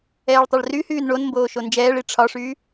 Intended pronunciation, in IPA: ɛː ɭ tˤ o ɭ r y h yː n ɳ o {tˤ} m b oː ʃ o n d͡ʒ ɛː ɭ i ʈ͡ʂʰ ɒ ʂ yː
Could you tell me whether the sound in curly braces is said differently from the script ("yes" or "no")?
yes